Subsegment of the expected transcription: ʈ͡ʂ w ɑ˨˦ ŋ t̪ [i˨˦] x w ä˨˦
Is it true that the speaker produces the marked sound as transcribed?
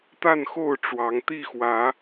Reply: no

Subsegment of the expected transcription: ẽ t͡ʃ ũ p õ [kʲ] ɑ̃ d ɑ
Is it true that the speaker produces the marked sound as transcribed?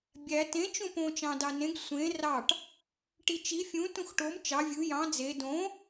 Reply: no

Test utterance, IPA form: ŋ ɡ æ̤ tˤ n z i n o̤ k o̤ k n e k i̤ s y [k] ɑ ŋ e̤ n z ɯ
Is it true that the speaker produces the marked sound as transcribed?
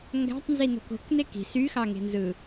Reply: no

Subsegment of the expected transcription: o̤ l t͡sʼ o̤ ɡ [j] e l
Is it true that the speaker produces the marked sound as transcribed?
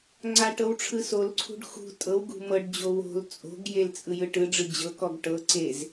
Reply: yes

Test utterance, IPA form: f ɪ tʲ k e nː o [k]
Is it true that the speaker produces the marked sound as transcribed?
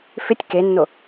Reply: no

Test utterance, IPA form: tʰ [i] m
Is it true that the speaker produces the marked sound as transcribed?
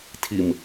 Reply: yes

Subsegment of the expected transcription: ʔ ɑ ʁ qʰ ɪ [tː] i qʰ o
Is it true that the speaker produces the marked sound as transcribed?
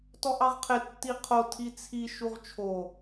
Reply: yes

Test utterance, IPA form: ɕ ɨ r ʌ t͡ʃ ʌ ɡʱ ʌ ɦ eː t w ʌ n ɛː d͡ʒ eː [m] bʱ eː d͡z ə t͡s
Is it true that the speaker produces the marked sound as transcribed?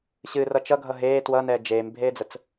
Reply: yes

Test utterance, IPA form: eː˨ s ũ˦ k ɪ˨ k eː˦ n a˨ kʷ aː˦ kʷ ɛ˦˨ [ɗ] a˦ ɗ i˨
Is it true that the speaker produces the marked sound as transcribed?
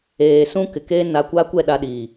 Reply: yes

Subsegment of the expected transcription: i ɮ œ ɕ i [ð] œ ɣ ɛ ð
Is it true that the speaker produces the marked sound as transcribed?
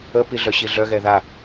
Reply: no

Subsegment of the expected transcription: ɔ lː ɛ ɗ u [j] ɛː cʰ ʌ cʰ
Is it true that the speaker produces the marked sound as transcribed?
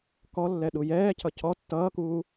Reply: yes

